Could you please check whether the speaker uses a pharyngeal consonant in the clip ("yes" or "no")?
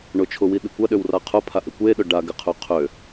no